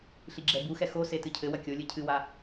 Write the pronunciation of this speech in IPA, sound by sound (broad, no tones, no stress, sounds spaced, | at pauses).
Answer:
ɬ i ɡ͡ǁ ɛ b u x ɛ x o s e t ɨ cʰ ɘ w ɐ kʲ o lʲ ɨ cʰ ɨ w a